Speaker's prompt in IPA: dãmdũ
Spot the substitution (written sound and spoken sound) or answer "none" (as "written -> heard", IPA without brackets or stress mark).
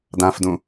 m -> f